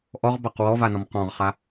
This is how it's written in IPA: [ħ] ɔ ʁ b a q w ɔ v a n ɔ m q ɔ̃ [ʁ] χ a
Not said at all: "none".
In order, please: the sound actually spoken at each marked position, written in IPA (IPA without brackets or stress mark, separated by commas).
ʔ, ʁ